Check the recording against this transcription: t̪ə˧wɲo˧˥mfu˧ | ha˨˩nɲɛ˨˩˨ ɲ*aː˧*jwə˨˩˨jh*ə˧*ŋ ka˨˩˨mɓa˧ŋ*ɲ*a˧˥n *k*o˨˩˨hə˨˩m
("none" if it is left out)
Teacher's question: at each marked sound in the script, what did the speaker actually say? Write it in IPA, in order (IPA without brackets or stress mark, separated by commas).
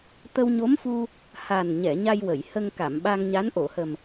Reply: a˧, ə˧, ɲ, ʔ